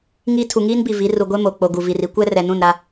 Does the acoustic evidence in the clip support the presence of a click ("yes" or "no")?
no